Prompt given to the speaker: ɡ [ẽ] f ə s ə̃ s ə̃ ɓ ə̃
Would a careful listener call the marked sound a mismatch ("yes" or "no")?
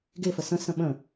yes